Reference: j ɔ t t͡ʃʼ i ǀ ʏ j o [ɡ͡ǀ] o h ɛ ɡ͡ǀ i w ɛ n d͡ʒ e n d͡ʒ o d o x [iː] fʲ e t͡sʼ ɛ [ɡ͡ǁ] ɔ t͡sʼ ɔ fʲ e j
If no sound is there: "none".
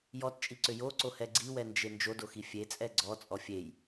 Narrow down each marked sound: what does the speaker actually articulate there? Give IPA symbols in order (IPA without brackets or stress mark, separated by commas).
ǀ, i, ɡ͡ǀ